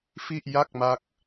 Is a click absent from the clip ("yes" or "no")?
yes